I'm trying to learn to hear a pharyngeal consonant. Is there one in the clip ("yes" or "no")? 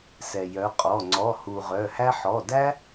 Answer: yes